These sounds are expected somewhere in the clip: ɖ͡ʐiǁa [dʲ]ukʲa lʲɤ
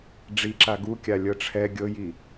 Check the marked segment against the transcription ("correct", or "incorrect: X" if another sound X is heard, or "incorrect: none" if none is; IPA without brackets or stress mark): incorrect: ɡ